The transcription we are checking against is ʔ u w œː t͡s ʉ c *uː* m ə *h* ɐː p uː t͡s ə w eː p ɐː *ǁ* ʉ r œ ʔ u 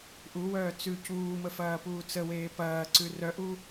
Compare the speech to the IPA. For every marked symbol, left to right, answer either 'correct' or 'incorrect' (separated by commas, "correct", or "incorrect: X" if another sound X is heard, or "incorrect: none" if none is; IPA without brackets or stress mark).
correct, incorrect: f, incorrect: ǀ